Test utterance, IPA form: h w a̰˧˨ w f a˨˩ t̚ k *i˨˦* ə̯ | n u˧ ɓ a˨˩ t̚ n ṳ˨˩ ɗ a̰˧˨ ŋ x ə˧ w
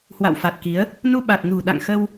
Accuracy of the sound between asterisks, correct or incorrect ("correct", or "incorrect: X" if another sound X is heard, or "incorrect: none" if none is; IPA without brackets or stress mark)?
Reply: correct